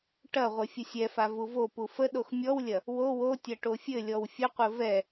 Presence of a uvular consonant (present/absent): present